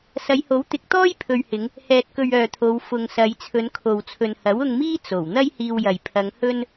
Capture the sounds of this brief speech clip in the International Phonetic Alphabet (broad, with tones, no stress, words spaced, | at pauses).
sɐ˨˧jho˨˥wt̪ɪ˨˥k̚t̪ɔː˥j pʰɵ˨ɥhɪ˨˧ŋ | hɛː˧t̚kɵ˧ɥœː˨t̪ʰo˨˧w fʊ˨ŋsɐ˨˧j t͡sʰɵ˨˧nkʰo˨wt͡sʰɵ˨n hɐ˨˥wʊ˧ŋmiː˥ t͡so˨˩w n̪ɐ˥jhiː˧wjɐ˨j pʰɐ˨˧ŋhɵ˥n